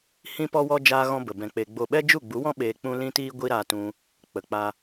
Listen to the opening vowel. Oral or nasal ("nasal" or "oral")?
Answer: nasal